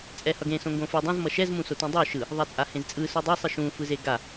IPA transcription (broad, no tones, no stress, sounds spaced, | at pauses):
t͡sʼ ɛ h ʌ ɡ ẽ s õ ŋ ɡ õ f ɯ dˤ õ z m ʌ ʃ ɛ z m ũ s o t ũ dˤ o ʃ ɯ | ðˤ a t͡sʼ a h ẽ z t͡sʼ ɯ s u dˤ e sˤ ɯ ʃ ũ f ɯ z e ɡ a